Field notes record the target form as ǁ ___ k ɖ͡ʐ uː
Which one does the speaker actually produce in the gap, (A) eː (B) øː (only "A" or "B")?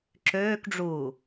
B